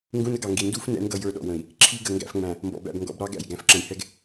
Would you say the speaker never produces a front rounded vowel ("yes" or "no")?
yes